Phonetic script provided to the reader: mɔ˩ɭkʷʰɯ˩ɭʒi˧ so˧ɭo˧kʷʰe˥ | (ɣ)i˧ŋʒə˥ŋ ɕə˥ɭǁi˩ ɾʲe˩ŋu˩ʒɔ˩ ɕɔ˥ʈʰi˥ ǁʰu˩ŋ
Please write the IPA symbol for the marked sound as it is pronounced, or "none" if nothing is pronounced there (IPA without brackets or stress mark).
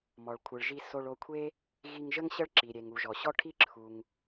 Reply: ɣ